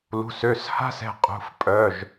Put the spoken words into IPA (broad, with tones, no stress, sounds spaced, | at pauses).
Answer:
l ṳ˩˧˩ s ø˩˧˩ s h a̤˥ s ɛ̤˧ qʼ ṳ˩˧˩ f pʼ œ˩˧˩ ʒ